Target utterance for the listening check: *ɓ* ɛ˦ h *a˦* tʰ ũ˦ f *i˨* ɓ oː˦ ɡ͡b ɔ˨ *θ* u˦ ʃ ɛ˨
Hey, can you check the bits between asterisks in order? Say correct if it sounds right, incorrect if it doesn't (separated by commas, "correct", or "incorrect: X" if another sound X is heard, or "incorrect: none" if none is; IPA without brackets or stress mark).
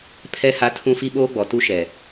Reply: incorrect: pʰ, correct, incorrect: i˦, incorrect: t